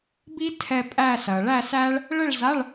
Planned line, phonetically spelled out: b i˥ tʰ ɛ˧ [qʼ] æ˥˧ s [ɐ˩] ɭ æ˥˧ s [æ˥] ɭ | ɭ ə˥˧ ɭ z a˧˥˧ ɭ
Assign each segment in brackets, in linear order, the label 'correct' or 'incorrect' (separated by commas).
incorrect, correct, correct